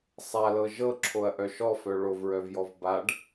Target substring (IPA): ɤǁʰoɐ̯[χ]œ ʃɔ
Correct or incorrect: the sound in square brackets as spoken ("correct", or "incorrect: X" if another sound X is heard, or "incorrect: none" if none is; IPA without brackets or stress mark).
incorrect: ʔ